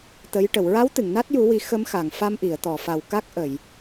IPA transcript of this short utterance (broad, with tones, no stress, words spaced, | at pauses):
t̪ə˧˥j ʈə˨˩˨wɹa˧˥wt̪ɨ˨˩˨ŋ na˦˥t̚ju˨˩˦wi˨˩˦ xə˧˥mxa˨˩˨ŋ fa˧mʔi˨˩˨ə̯t̪ɔ˨˩˨fa˨˩w ka˦˥k̚ʔə˨˩˨j